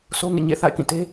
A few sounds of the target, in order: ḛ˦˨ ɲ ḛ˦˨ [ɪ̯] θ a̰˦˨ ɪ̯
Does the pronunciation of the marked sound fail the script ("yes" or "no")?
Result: yes